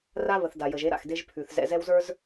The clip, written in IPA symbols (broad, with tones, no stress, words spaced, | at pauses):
ra˦βə˨θ da˨jə˨ʒe˦ ɾa̰˨xde˦ʒpʰʉ˨θ zɛ̰˨zɛ˦wzə˞˦z